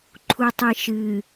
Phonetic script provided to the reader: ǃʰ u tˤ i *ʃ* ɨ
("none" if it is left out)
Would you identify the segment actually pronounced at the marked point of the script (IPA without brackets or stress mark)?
ʃ